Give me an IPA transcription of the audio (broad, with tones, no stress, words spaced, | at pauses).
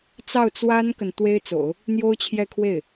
t͡sɑ˥˩ʊ̯t͡swa˥nkə˨n t̪we˥ɪ̯t͡so̰˨˩˦ʊ̯ | n̪jo˥ʊ̯t͡ɕʰjɛ˥˧kʰwe˥˩ɪ̯